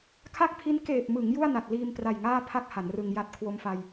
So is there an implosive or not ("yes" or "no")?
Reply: no